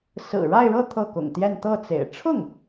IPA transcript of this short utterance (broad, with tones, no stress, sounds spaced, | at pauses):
s ɹ̩˨˩ ɻ a˥˧ ɪ̯ ɻ ɤ˥˧ t̪ʰ ɤ˥˩ k ʊ̰˨˩ ŋ t̪ j ɛ˥˧ n t̪ ɤ˥˩ t͡s ḛ˨˩ ɪ̯ ʈ͡ʂʰ ʊ˥˩ ŋ